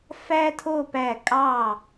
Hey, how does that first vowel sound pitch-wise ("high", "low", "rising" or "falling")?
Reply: high